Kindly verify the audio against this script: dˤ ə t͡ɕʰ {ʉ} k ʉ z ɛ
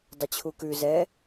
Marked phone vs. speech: incorrect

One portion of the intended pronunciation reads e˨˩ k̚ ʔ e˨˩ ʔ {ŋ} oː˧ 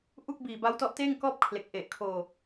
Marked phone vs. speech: incorrect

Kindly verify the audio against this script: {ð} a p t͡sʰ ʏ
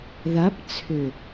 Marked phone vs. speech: correct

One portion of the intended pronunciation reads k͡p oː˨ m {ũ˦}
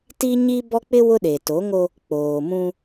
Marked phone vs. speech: correct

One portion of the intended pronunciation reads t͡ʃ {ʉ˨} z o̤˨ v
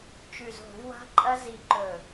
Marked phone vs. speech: correct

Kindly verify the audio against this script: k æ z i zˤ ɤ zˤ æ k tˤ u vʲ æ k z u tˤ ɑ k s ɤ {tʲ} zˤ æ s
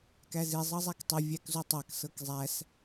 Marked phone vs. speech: incorrect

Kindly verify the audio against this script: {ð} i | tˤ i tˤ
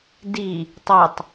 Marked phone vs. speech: incorrect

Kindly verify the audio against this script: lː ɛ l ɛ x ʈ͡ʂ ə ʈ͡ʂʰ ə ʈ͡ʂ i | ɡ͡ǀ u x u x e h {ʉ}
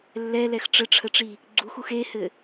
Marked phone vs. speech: incorrect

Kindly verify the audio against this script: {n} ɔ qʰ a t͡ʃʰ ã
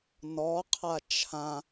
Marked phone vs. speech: correct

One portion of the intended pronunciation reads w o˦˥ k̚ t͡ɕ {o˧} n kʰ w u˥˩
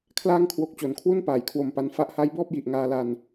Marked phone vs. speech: incorrect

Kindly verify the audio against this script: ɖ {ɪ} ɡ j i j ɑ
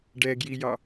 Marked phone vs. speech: incorrect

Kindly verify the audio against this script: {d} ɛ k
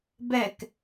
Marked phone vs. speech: incorrect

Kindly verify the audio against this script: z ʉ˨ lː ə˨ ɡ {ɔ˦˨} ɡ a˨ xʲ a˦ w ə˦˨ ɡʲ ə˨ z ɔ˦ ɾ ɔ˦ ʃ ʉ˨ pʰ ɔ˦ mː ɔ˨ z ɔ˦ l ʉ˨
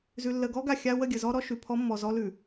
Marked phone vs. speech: incorrect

